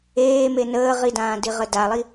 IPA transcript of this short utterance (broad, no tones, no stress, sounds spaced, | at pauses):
eː m e n əː ʁ i d ãː d i ʁ ə d a lˠ i